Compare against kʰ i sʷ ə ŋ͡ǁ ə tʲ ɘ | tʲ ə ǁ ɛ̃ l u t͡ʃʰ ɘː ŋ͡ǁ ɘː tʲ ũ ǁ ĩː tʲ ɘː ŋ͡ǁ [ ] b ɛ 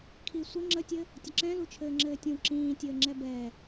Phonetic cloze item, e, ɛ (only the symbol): ɛ